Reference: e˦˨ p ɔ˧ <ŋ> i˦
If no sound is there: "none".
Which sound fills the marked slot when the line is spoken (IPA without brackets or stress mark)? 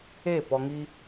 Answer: ŋ